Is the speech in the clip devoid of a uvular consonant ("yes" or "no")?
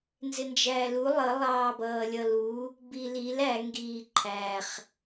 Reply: no